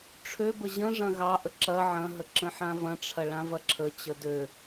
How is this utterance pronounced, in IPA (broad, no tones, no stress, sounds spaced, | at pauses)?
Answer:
ʈ͡ʂʰ ø b ə ʑ ə̃ ʐ ɐ̃ ɣ ɑ ʔ ə ǁ ɐ ʕ ɐ̃ ɦ ə ǁ ə̃ ħ ã v ɐ̃ ʈ͡ʂʰ ɐ ɭ ã v ɐ ǁʰ ə t͡ɕ ə d ø